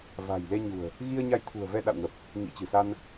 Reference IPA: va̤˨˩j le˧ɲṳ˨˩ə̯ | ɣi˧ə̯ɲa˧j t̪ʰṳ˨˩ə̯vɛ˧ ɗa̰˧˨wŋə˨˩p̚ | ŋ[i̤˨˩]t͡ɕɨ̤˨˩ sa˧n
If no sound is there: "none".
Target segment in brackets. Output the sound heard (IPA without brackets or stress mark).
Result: ḭ˧˥